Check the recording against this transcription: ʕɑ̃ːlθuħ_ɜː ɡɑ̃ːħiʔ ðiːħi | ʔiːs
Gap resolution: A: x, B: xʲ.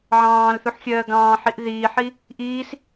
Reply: B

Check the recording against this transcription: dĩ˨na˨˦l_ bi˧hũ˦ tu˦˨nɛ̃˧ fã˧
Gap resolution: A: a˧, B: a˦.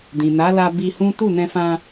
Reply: A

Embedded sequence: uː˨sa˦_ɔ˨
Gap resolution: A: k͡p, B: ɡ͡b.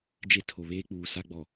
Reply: B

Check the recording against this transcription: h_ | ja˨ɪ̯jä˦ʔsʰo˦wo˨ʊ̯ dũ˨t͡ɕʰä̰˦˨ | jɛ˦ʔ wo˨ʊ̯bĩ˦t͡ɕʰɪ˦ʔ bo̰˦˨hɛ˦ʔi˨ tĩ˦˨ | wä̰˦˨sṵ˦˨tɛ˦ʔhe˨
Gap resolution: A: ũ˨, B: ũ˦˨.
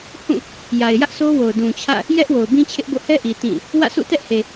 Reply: B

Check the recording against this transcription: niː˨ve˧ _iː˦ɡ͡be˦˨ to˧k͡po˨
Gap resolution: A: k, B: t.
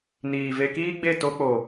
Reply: A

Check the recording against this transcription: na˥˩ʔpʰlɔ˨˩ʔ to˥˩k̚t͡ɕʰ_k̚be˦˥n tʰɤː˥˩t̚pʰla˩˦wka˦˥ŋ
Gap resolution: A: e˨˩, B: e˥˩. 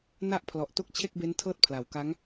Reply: B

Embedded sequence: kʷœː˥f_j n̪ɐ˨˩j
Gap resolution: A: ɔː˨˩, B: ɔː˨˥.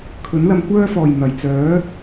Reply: A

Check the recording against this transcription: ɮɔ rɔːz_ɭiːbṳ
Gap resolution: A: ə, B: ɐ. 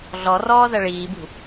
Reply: B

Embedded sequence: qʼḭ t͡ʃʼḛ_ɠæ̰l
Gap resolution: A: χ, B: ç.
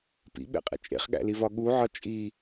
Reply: A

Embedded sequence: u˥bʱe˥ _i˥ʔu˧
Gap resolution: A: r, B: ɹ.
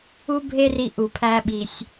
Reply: A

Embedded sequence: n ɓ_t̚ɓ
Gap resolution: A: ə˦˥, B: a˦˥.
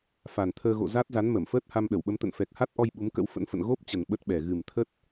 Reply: A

